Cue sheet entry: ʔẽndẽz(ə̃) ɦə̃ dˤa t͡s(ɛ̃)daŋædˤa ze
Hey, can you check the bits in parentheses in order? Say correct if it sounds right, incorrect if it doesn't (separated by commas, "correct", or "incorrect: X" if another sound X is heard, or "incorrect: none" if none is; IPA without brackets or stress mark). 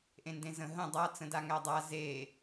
correct, incorrect: ə̃